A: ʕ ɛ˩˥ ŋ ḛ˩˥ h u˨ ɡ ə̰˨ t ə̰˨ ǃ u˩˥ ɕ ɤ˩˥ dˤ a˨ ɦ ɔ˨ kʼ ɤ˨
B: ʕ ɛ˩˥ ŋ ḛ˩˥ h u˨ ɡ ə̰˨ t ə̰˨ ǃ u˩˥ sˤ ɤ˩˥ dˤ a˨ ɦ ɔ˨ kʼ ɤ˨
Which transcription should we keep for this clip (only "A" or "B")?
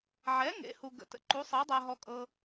B